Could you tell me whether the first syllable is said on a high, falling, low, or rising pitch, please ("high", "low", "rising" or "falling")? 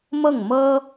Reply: falling